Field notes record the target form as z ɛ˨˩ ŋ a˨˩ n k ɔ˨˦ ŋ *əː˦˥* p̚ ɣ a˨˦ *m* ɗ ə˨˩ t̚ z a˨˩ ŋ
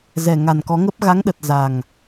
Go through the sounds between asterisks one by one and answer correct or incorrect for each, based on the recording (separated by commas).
incorrect, incorrect